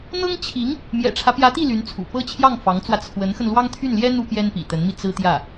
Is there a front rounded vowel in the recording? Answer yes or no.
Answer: yes